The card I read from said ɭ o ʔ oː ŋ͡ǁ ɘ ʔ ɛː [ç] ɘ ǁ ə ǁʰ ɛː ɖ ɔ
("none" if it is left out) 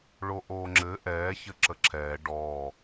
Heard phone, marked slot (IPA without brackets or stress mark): ç